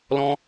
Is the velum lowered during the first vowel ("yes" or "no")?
yes